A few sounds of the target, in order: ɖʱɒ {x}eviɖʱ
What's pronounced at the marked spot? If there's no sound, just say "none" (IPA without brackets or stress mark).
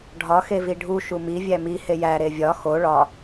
x